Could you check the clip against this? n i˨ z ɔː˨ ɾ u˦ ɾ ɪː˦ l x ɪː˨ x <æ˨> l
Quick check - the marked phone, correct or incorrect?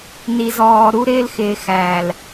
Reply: incorrect: æː˨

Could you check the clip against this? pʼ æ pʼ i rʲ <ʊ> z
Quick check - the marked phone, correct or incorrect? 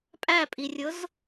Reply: correct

